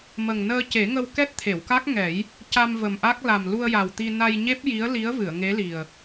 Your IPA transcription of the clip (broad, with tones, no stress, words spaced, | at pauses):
mə˨˩ŋnəː˧ce˨˩˦ ŋə˧wkɛ˦˥t̚t̪ʰe˨˩˨wka˦˥k̚ ŋɛ˨˩˦j | ca˧mvə˨˩mʔa˦˥k̚ la˨˩mlu˧ə̯ja˨˩wt̪i˧ na˧jɲe˦˥p̚ ji˧˥ə̯li˧˥ə̯ vɨ˨˩˨ə̯ŋe˧˥li˨˩ə̯